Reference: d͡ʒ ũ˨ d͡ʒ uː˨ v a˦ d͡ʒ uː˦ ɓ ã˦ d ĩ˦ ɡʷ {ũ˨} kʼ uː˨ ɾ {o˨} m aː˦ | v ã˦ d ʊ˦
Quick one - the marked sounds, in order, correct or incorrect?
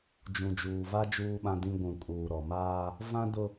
correct, incorrect

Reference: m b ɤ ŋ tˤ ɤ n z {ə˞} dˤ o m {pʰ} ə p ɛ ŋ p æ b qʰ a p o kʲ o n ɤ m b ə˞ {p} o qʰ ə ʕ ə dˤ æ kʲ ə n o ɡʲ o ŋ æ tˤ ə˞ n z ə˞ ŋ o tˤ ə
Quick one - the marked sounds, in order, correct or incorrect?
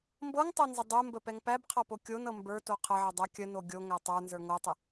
incorrect, incorrect, incorrect

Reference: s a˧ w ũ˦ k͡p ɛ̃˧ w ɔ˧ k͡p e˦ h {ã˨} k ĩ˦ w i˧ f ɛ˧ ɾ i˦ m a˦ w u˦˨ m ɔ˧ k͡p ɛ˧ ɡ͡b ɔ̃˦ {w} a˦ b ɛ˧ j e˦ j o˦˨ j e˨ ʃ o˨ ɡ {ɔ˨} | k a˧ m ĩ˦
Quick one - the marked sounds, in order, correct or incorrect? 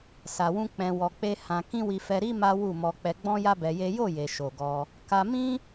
incorrect, incorrect, incorrect

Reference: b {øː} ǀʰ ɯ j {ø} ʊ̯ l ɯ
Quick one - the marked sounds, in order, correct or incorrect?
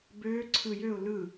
correct, correct

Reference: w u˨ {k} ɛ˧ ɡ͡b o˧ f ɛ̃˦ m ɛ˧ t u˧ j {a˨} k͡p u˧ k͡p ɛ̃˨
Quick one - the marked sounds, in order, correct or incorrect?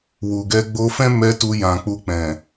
incorrect, incorrect

